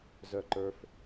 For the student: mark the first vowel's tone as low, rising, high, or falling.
low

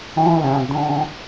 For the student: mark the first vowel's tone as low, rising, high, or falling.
high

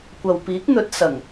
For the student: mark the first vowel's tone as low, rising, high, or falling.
low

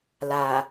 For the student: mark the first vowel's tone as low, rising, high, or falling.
low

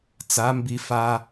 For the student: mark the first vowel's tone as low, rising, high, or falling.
rising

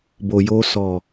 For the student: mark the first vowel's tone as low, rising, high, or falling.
low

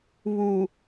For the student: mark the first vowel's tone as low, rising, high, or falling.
low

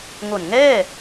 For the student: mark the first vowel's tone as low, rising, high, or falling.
low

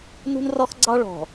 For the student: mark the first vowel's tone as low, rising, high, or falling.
high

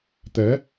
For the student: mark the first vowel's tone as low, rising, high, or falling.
rising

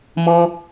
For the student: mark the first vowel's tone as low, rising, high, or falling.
high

